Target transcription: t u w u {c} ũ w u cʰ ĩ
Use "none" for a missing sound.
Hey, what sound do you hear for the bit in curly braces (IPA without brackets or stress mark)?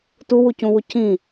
c